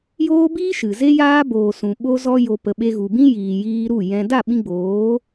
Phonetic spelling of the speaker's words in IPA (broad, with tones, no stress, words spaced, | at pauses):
joː˦biː˦ ʃɨ˨ ze˦jaː˦boː˨ sũ˨ɓo˦ zɔ˧jo˨ pə˨ɓe˧ɣu˨bĩ˦ jiː˨jiː˧ɾu˦˨ jɛ̃˧ da˦˨ɓĩ˧ɡ͡boː˨˦